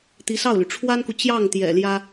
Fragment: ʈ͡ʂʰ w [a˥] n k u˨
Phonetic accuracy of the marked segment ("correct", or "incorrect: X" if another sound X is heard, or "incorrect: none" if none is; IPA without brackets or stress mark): correct